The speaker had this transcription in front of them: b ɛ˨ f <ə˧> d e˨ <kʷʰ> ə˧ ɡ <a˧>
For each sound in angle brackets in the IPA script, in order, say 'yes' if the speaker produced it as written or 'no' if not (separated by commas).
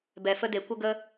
yes, no, no